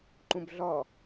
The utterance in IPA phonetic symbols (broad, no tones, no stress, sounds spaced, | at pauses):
ǃ ũ b ɮ ɔ